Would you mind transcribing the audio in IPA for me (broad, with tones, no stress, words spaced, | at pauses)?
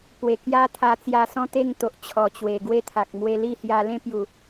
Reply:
pwe˨˩kja˦t̪ʰa˧ t͡sja˧sɔ̃˥˧t̪e˥˧ŋt̪o˨ʔ t͡ɕʰɔ˨˩t͡ɕwe˨˩ɡwe˦t̪ʰa˨k̚ mwe˧li˥˧ hja˧lẽ˦pju˨˩